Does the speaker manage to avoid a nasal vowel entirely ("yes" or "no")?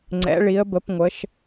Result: yes